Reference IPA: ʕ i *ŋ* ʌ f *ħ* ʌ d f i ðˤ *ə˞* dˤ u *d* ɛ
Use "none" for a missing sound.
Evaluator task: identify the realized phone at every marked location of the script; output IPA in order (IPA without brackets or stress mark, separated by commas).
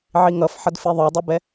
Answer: ŋ, ħ, ə˞, b